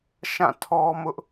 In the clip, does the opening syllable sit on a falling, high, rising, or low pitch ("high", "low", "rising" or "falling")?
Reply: falling